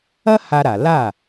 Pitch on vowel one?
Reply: high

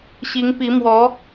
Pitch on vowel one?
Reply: rising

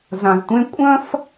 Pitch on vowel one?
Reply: low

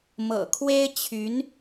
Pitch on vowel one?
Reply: low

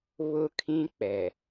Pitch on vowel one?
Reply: high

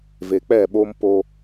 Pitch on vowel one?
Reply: low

